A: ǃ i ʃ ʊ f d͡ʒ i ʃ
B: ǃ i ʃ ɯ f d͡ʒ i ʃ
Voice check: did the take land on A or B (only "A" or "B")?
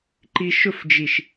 A